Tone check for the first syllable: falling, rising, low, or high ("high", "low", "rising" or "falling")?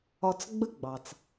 low